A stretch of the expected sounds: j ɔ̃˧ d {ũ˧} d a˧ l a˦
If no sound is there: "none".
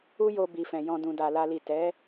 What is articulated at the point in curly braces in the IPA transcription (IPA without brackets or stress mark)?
ũ˧